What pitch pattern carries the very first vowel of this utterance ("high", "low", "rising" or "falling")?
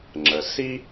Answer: low